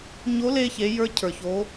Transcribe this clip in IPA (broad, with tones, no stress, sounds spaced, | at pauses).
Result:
ɲ o˧˥ l e˧ ç e˩˧ j ə˞˧ cʰ ə˞˩ ç o˩˧